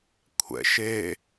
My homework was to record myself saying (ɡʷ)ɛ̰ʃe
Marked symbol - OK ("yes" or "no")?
no